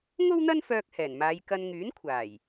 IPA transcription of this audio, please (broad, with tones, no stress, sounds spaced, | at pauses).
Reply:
ŋ o˥ w n̪ ɐ˥ n f œː˧ k̚ h ɛː˨˩ n m aː˨˧ j k ɐ˧ n ŋ yː˨˥ n kʷʰ aː˨˩ j